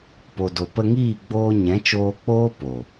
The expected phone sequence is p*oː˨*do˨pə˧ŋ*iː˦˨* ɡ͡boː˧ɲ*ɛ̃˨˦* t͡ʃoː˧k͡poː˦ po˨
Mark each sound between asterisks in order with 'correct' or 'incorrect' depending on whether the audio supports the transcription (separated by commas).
incorrect, correct, correct